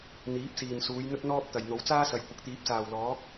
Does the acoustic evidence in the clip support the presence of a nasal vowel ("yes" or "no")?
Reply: no